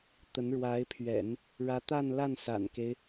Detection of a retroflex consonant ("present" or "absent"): present